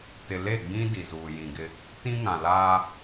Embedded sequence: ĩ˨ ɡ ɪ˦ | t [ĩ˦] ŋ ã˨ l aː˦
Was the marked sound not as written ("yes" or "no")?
no